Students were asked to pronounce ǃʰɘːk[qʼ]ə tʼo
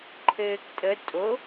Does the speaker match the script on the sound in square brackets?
no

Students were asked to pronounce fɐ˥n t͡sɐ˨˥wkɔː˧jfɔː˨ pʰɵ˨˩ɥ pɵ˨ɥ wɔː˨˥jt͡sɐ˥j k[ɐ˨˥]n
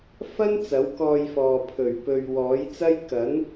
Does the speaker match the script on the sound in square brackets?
yes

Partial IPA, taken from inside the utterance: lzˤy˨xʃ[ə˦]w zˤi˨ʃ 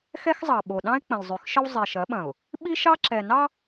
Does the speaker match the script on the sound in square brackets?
yes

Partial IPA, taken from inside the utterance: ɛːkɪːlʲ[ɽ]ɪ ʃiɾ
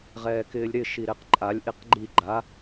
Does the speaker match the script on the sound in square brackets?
no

